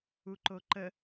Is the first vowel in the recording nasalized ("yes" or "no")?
no